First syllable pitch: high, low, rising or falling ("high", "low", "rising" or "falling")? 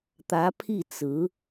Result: rising